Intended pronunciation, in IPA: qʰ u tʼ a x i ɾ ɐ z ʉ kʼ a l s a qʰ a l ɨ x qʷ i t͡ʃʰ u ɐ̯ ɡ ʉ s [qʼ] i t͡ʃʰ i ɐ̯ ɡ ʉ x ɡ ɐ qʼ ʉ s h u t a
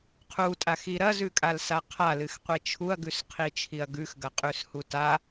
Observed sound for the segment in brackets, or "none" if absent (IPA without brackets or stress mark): qʰ